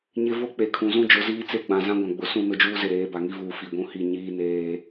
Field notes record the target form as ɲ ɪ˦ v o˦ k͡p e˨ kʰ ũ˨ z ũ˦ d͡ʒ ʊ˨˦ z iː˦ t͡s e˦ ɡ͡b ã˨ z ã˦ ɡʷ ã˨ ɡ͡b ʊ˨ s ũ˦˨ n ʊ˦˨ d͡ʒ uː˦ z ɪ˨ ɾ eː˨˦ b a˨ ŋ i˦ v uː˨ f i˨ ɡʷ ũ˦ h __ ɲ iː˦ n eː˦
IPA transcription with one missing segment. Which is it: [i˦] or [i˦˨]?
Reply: i˦˨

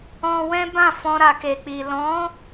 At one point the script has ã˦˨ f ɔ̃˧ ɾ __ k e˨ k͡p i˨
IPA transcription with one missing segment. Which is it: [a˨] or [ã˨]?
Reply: a˨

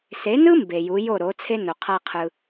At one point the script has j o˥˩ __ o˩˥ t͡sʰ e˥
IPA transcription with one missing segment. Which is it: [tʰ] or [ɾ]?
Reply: ɾ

